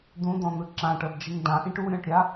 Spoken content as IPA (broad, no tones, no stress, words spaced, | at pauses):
d̪ũd̪ɔ̃n̪ɯ ǁãʈɤdd͡ʒiŋ dãʔĩʈ uɾʲɔ̃ʈɾʲa